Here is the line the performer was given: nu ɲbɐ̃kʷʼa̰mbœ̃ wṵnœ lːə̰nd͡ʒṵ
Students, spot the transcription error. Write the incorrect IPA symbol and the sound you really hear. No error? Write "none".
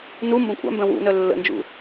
ɲ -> m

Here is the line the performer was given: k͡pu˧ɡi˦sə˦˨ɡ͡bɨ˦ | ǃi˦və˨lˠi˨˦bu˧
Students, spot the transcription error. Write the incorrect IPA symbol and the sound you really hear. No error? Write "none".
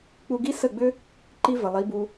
ɨ˦ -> ʏ˦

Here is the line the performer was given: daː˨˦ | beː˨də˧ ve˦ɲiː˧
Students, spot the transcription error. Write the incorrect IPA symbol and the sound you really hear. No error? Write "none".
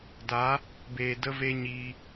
none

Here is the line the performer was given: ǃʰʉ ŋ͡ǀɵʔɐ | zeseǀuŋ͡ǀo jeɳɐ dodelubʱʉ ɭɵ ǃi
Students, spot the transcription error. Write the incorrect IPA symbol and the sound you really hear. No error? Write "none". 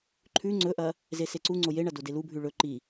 none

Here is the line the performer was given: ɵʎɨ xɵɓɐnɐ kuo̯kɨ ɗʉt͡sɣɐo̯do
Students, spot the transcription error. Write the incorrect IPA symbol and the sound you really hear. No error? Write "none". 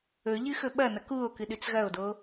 none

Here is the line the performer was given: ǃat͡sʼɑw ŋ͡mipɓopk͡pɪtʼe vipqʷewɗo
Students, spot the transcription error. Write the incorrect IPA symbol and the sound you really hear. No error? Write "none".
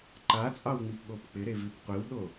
tʼ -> ɾ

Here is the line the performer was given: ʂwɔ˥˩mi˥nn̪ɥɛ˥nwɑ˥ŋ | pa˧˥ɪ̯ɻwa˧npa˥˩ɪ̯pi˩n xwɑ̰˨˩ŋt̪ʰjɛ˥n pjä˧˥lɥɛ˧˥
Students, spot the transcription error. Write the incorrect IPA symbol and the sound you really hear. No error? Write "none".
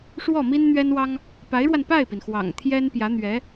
l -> n̪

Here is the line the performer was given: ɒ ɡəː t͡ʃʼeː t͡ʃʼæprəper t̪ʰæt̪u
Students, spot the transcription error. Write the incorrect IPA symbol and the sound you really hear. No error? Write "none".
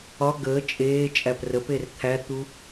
none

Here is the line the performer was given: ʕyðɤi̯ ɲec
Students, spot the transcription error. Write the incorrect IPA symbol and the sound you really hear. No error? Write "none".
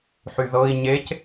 ʕ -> ħ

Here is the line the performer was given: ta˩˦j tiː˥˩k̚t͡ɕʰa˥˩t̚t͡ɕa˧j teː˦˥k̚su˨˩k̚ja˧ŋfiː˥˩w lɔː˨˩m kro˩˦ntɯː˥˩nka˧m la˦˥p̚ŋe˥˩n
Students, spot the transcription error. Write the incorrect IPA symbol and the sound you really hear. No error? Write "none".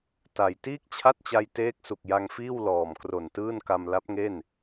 o˩˦ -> o˨˩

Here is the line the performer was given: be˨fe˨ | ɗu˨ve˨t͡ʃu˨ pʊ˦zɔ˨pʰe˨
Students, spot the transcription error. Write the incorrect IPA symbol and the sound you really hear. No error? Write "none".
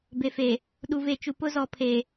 none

